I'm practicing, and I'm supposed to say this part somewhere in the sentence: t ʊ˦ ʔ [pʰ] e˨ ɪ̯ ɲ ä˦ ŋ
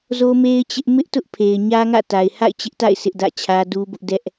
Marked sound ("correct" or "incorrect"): correct